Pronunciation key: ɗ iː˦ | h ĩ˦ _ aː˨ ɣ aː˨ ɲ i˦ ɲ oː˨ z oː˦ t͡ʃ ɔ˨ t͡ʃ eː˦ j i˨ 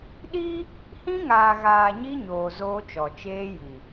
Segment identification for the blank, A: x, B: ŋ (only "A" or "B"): B